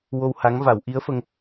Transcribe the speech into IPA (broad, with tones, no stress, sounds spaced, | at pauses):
w o˧ w h a˧˥ ŋ v a˨˩˦ w ʔ i˧˥ ə̯ f ə˧ ŋ